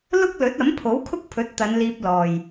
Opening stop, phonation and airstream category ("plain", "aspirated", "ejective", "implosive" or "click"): plain